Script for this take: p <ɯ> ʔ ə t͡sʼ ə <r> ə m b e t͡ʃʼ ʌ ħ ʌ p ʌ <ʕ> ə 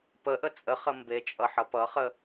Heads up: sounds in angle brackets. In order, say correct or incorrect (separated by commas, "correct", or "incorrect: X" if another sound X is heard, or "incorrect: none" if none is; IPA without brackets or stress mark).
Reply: incorrect: ə, incorrect: χ, incorrect: χ